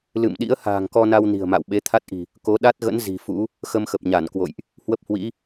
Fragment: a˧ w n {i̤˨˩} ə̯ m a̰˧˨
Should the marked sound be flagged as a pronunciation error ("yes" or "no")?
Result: no